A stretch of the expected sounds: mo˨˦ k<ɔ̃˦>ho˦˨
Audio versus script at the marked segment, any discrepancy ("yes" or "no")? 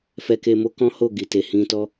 no